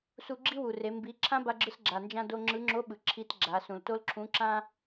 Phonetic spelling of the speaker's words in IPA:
su˧ɡ͡ǁi˥wu˩re˩˧ mbi˩˧ ǁʰã˥ba˧ɡ͡ǁɯ˧s ɡ͡ǁa˩nd͡ʒã˧ do˧ŋ͡ǁɯ˧˥ ŋ͡ǁo˧˥ ɓɯ˩ǁʰi˧˥t ɡ͡ǁa˩˧sũ˩lto˥lǁʰũ˧˥ ǁã˥

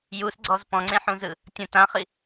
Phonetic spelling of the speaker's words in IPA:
jusɡ͡ǀɔz pɔ̃ŋ͡ǀẽħũzɯ | tʲõ tãχi

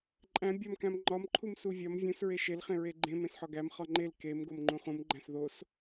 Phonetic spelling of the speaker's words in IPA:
ǃʼæ̃ bʲɒmkæ̃m ŋ͡ǃɒmǃʰum suvʲɒm vʲũsɹe ʃelχẽ ɹeɡ͡ǃẽ mẽsħɒɡæm χɒŋ͡ǃel kem ɡomŋ͡ǃũχũmɡ͡ǃæ̃s ðos

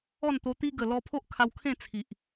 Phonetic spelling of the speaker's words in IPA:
ɔ˥˧nt̪o˧t̪i˦ ɡə˨˩lɔ˧ pʰo˦ʔkʰa˧wkʰẽ˥˧ t͡sʰi˨ʔ

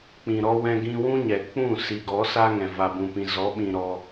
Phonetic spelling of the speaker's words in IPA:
k͡pĩ˨ ɾɔ˧ wɛ̃˧ɡĩ˧wũ˦ɲɛ˨ k͡pũ˦˨si˨ɡɔ˨˦ sa˦ŋɛ̃˨ va˨bũ˨pĩ˨ zɔ˨˦ɓĩ˨ ɾɔ˧

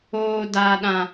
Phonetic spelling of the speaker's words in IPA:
oː˦daː˦ ɗã˦

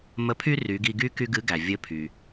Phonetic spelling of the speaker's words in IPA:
mə˧˥pʰy˥ ry˩˧ɡi˧ɡy˥ ky˥ɡɨ˧˥ ɡæ˩vʲɘ˧˥ pʰy˩

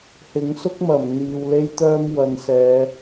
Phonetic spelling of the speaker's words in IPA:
hɪ˨˥ŋ sʊ˥k̚mɐ˨˩m n̪iː˨wle˥jt̪œː˥m wɐ˨nsɛː˨˧

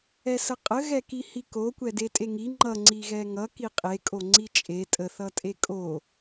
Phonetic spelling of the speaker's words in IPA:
ɛsəqʼə ɣɛkihiko kʷɛdetʼeŋi ŋ͡ǃʌ ŋ͡ǀiɣɛŋʌ kiqʼe kʼoŋ͡ǀit͡ʃʼe tʼə θʌtʼekʼo

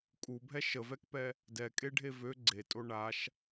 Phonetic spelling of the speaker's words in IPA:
kʼubʱɛ ʃəvɛkpɛ | dɛkʼeɖʱe vø ɡ͡ǀetʼo ɳaʃ

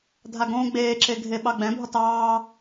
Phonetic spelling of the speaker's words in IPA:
dʱaɡõːɡ͡beːǁe ɡʱeɓɑɡ͡bɛ̃bʱɔt ɑː

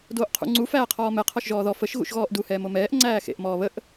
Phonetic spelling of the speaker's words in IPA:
doːʔqʰṵ ŋ͡ǀu fæːqʰɔːmɛ qʰɔʃʒɔːðɔ fəʃ ɣṵʃɣɔːʔdu hɛːmomɛːʔ ŋ͡ǀæːxḛʔ mɔːβəʔ

